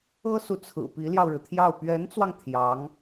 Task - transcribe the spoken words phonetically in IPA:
ɤ˥ s u˨ t͡sʰ ɹ̩˨˩ p i˧˥ l j ɑ˧ ʊ̯ ɻ ɻ̩˩ t̪ʰ j ɑ˥˩ ʊ̯ p ɥ ɛ˧˥ n t͡s w ɑ˧ ŋ t̪ʰ j ɑ˧˥ ŋ

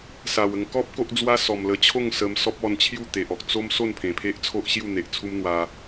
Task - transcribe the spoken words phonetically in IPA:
s a˨˩ w ə˧ ŋ k ɔ˦ p̚ k o˦ ʔ d͡z w a˦ s ɔ˨˩ m l ə˧ t͡ɕʰ o˥˧ ŋ s ə˧ m s ɔ˦ p̚ ɔ˧ n t͡ɕʰ j u˥˧ t̪ e˨ ʔ ɔ˨ k̚ t͡s o˦ m s o˥˧ n pʰ ẽ˨˩ pʰ e˦ ʔ t͡sʰ o˦ ʔ ɕ j u˥˧ n̪ e˨ ʔ t͡sʰ u˦ m n̪ w a˧

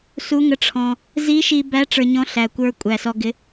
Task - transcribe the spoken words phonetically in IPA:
s u˧˥ ŋ ə˧˥ ʈ͡ʂʰ ɔ̃˧ | z i˧˥ ʃ i˧ b æ˧˥ ʈ͡ʂ ə˞˧ ɲ ɔ̃˧˥ ɬ æ˨˩ kʷ ə˞˧ kʷʼ æ˨˩ s ɔ˧ ɡ ɪ˧˥

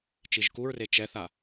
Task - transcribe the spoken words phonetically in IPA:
t͡ʃ i ʒ k u ɹ r e t͡ʃ ɛ θ a

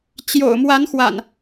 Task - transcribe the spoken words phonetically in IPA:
t͡ɕ j o̰˨˩ ʊ̯ m w a˨˦ n x w a̰˨˩ n

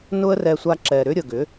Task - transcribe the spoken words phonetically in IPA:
n ʊ˦ ə̯ r ɛ˧ sʷ a˧ ǁ ɛ˨ ɾ ʏ˦ ɾʲ ə˨ ɡ ʏ˨˦

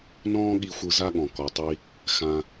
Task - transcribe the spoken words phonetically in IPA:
n ɔ̃ː˥ ɠ i˧ xʷ ɯ˧ z a˥ ɠ ɔ̃˩ k ɔ˩ tˤ i˧ | x ã˧

